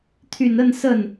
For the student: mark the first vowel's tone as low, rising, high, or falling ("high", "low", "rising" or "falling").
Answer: low